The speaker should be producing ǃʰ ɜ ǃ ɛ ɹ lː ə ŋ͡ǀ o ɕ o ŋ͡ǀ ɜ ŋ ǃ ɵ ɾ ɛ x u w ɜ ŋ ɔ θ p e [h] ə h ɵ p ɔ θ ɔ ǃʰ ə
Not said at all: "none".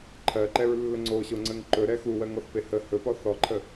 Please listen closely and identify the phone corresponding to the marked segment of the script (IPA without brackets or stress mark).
h